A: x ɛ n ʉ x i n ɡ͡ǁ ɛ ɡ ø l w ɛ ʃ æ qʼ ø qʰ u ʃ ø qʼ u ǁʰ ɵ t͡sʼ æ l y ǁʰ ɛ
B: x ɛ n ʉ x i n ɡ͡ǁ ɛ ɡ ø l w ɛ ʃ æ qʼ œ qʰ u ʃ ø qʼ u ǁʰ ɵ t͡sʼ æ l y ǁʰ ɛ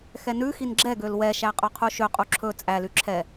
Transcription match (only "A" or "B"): B